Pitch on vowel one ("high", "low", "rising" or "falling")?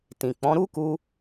low